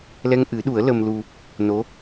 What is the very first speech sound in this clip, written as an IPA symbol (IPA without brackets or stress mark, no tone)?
l